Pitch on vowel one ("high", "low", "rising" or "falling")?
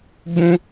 high